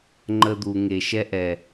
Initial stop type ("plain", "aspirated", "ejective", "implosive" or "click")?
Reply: click